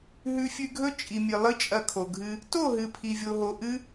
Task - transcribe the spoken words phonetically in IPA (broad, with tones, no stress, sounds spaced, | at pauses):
ɦ ʉ˧ fʲ ʉ˧ ɡʱ ɵ˦ t͡ʃʼ i˨ mʲ ɨ˨ lˠ ɨ˦ t͡ʃʼ ɐ˧ kʰ o˨ ɡʱ ɨ˧ | t o˦˨ ɦ ɨ˨ pʰ i˧ vʲ o˧ ɦ o˧ ʔ ɨ˦